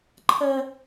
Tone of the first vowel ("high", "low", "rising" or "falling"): high